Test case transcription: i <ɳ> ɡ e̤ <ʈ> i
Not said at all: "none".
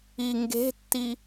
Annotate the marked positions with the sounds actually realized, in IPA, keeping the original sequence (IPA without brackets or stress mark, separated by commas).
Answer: ŋ, tː